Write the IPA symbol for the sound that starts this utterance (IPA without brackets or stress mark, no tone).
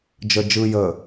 d͡ʒ